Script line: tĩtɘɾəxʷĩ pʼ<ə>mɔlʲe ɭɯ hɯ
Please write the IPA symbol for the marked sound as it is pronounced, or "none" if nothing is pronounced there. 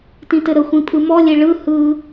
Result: ɯ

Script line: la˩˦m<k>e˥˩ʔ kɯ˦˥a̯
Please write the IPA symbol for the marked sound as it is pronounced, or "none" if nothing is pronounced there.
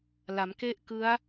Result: k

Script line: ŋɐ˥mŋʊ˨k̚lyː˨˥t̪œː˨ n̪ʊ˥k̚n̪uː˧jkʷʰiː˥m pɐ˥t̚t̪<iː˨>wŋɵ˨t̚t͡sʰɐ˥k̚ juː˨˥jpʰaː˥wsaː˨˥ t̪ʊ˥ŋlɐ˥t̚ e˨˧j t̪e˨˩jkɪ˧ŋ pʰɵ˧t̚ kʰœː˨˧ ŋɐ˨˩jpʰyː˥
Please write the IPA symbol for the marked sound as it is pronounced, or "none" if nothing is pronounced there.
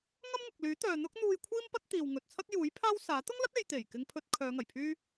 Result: iː˨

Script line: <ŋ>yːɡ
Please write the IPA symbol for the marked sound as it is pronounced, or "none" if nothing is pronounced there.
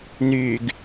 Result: n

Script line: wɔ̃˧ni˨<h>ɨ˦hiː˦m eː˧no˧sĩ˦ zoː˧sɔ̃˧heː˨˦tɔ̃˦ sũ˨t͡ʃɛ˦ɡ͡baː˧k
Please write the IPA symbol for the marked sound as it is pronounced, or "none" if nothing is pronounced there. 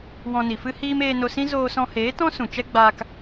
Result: f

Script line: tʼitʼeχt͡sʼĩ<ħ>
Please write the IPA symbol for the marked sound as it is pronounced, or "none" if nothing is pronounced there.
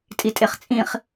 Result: χ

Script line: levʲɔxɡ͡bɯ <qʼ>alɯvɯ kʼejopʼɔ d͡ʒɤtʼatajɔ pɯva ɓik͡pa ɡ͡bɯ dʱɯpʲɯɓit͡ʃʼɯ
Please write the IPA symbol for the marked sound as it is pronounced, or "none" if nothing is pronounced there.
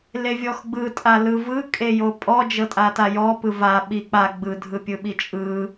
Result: tʼ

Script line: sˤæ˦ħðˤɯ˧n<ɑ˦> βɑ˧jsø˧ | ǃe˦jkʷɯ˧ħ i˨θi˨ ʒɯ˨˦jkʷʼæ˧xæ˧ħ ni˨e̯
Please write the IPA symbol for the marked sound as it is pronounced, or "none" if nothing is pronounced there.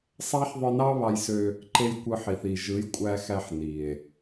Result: ɑ˦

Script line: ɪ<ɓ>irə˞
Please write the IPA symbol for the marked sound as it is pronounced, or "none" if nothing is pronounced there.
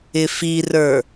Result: f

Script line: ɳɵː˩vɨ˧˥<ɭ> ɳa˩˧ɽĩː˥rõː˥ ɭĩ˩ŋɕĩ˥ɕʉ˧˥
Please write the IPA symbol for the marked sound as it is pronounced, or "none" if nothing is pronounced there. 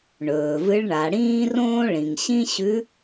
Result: ɭ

